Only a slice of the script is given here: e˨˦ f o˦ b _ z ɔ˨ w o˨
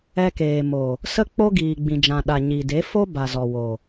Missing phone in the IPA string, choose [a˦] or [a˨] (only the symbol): a˨